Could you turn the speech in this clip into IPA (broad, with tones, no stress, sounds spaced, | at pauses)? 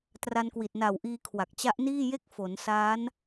t r a˧ n k w i˨˩ t̚ n a˨˩ w ʔ iː˧ kʰ w a˨˩ k̚ t͡ɕ a˦˥ ʔ n iː˥˩ j e˥˩ k̚ f o˩˦ n s aː˦˥ n